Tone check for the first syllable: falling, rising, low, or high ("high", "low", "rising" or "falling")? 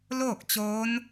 falling